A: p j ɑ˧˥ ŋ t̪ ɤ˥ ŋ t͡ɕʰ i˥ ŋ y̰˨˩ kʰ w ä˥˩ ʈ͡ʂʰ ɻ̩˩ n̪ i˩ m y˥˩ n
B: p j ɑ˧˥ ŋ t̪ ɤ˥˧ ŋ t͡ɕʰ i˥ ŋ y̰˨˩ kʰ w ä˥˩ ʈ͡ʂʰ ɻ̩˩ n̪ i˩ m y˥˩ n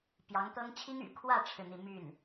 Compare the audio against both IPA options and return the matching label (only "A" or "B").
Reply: A